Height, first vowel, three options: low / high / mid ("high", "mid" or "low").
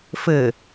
mid